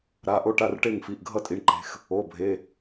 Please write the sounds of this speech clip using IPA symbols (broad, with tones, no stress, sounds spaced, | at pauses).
ɾ a˩˧˩ ʔ o˥˩ ʈ a˥˩ r ʈ e˥˩ ŋ f i˩˧˩ ʔ ɡʱ ʌ˥˩ tʼ i˩˧˩ ɳ ǃ e̤˩˧˩ x | o˩˧˩ bʱ e˩˧˩